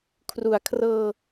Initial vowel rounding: rounded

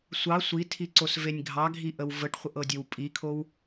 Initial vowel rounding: unrounded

